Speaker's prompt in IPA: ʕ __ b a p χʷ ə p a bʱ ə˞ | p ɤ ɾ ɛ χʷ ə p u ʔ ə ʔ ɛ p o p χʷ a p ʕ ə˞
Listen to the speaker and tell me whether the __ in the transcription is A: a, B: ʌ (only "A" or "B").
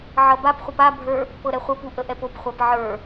B